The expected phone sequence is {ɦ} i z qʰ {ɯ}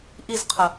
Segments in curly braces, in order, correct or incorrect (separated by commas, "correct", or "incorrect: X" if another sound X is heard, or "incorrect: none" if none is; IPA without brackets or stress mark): incorrect: ʔ, incorrect: ə